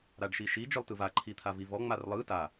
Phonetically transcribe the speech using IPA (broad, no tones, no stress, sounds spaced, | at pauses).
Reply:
ɾ a ɖ ʃ i ʃ i d͡ʒ ɯ lˠ t ɯ v a ǃʰ i t̪ʰ a v i v ɔ ŋ͡m a r lˠ ɯ t a